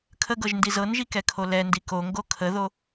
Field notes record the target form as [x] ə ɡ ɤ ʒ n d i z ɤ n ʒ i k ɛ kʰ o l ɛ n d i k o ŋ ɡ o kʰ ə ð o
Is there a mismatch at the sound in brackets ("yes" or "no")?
yes